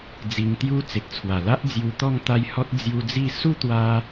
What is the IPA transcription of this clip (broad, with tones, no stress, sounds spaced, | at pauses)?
d͡z i˧ ŋ t̪ j u˦ t͡s e˨ k̚ t͡sʰ w a˨˩ l a˦ ʔ d͡z j u˧ t̪ ɔ˥˧ ŋ t̪ a˧ j h ɔ˦ t̚ d͡z j u˧ d͡z i˥˧ s u˥˧ t̪ w a˧